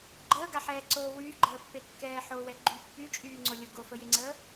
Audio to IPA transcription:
ɡ͡ǃ əː ɡ a ħ ɛː ǀ oː w yː ɡ͡ǃ əː pː e kː ɛː ħ o w ɛ ɡ͡ǃ y pː y t͡ʃʼ yː ŋ͡ǀ o lʲ o ɡ o f ə j e ŋ͡ǀ əː

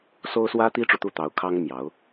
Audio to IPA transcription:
s o˥ ʊ̯ s w ä˥ t̪ i˥ ʈ͡ʂ u˨ t̪ u˥˩ t̪ ɑ˧˥ ʊ̯ kʰ ɑ˥ ŋ m j ɑ˧˥ ʊ̯

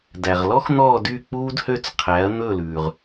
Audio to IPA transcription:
d æ˩ ʁ l ɔ˥ x n̪ ɔː˥˨ d y˥˨ k͡p uː˥ d h ø˥˨ t͡s qʰ æ˩˥ ɐ̯ n̪ ɵ˥˨ l ʉː˩ ʁ

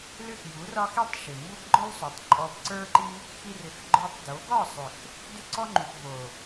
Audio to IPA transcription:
l ʏ˦˨ x j u˨˦ r ɒ˦ x i˦ tˤ ʃ ʏ˨ m b o˦ b ɡ͡ǃ ɔ˦ l sˤ o˨ tˤ ǃʼ ɔ˧ b ǀ ə˞˦ ǃ i˦ | x i˧ r ʏ˨ x ɡ͡ǃ ə˞˧ tˤ d o˨˦ ɡ ɒ˦˨ sˤ ʏ˨ x | d ʏ˦ ǀ ɔ˦ ŋ͡ǃ u˨ x v o˨

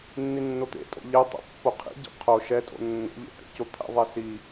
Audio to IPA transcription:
nː i nː o t̪ ḛ tʼ o̰ ʎ e tˤ ɛ̰ pː o qʰ ḭ ɟ ḛ qʰ o ʃ ɛ tʼ o̰ nː o̰ ʎ ḛ t̪ ḛ c o t̪ʰ ɛ̰ ðˤ e s i

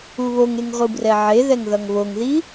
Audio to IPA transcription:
u β o ŋ e ŋ ʁʷ ɯ b r ɛ ʕ e ð ɛ ŋ ð ʌ ŋ β o ŋ ð i

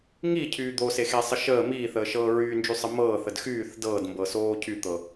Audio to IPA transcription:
ŋ i cʰ yː d̪ o s e x e sˤ ə ʃ əː m iː θ əː ʃ ɤː ɹ yː n d͡ʒ y sˤ ə m ɤː θ ə d x yː θ d ɤː d m b ɤ s oː cʰ y t̪ ɤ

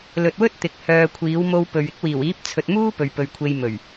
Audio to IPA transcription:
l ɵ˨ t̚ w ɵ˥ t̚ t̪ ɪ˨˥ k̚ h œː˧ kʷʰ iː˨˥ w m o˧ w p ɵ˨ ɥ ɪ˥ k̚ w iː˨˩ w iː˨˥ p̚ t͡sʰ ɵ˨ t̚ m uː˥ p ɵ˨ ɥ p ɵ˨ ɥ kʷʰ e˧ j m ɵ˨˩ ɥ

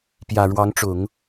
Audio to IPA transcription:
p j ä˨˩ ɻ w ɑ˧˥ ŋ ʈ͡ʂ ʊ˨˩˦ ŋ

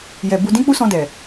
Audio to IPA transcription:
j ɛ˨ b u˧ d ĩ˦ k͡p u˦ s ɔ̃˧ d ɛ˨

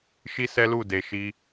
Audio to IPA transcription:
ʃ i˦ s ɛ˦ l u˦˨ d e˧ ʃ i˦

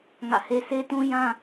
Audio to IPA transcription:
ŋ ä̰˦˨ h e˦ s e˦ t ũ˦ j ã˦

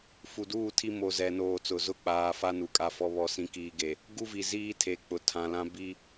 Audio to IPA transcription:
f u˨ d uː˦˨ tʰ i˦ m o˨ z ɛ˨ n oː˨ t͡s ʊ˨ z ʊ˦ k͡p aː˨ f a˦ n u˨ kʼ a˦˨ f ɔ˦ β ɔ˦ s ĩ˦ k iː˦ ɡ e˨ | ɡ u˦ v i˨ z iː˦ tʰ e˨ k͡p ʊ˨ tʰ ã˨ l ã˦ b i˦

